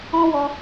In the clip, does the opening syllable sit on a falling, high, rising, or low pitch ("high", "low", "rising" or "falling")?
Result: high